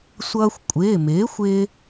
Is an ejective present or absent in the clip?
present